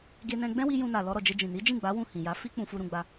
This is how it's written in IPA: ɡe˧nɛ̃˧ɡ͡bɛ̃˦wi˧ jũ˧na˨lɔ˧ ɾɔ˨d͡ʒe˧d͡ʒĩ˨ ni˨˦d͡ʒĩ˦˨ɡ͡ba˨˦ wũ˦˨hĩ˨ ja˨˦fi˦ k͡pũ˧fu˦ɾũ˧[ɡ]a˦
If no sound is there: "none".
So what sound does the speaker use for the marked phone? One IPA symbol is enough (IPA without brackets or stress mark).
ɡ͡b